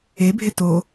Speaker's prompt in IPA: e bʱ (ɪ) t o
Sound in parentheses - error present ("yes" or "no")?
no